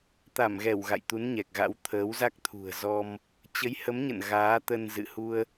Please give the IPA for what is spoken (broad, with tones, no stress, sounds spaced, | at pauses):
t̪ a˧˩ m ɣ ɛ˧˩ w ɣ a̰˧˨ j t̪ u˨˦ n ɲ ɛ˨˩ k̚ ɣ a̰˧˥ w t̪ʰ əː˨˦ w z a˦˥ k̚ t̪ʰ ṳ˨˩ ə̯ z ɔ˧ m | t͡ɕ ə˨˦ j h ə˨˦ m ɲ ə̰˧˨ n ɣ aː˨˦ t̪ ə˧ n z ɨ̰˧˨ h u˧ ə̯